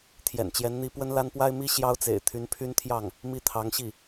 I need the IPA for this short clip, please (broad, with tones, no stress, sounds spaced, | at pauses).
t̪ʰ j ɛ̰˨˩ n t͡ɕ j ɛ˧˥ n n̪ i˥ p w ə˥ n l a˥ n p w a˥ ɪ̯ m i˥ ɕ j ɑ˥ ʊ̯ t͡s ḛ˨˩ ɪ̯ t̪ʰ y˧˥ n pʰ y˥ n t̪ʰ j ɑ˥˩ ŋ | m i˥˩ t̪ʰ ɑ˧˥ ŋ ɕ i˥˩